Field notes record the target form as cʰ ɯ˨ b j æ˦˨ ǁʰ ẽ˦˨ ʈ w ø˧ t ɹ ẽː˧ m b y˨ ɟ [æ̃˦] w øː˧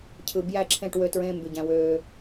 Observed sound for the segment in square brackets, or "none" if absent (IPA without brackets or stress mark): æ̃˧